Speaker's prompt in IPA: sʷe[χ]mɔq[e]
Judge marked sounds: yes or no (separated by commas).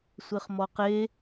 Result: yes, yes